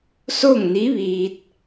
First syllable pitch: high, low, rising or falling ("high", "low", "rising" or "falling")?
falling